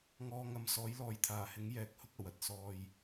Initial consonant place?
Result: velar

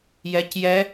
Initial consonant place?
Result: palatal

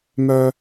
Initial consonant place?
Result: labial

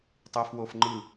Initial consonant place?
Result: alveolar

